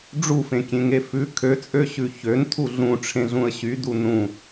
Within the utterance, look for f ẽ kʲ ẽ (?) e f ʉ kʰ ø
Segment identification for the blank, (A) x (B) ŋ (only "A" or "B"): B